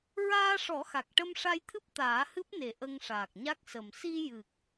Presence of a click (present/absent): absent